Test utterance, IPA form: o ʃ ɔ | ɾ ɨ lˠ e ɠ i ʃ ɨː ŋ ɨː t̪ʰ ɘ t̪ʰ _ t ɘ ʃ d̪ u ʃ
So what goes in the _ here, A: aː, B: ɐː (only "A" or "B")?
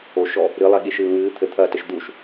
B